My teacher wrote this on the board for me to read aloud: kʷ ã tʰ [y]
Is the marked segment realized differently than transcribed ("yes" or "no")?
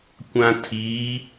yes